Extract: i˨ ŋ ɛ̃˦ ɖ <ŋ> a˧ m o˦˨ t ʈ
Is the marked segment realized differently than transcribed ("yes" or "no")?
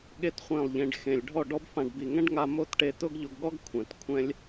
no